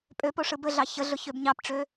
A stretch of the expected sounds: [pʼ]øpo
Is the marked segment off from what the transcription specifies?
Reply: no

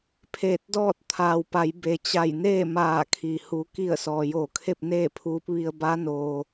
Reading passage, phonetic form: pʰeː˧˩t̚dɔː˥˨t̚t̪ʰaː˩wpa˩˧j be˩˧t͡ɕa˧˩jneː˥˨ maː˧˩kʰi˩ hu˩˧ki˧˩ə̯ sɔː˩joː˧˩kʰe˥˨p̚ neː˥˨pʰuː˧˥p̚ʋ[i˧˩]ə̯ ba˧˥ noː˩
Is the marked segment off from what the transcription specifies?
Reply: yes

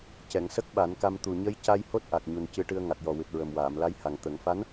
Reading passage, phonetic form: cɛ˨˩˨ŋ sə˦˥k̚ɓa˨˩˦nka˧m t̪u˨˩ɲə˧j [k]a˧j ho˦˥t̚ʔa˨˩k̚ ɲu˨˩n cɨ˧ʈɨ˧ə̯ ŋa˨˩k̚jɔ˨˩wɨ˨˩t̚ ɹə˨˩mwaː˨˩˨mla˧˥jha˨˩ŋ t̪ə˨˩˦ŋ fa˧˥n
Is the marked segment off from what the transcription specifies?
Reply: yes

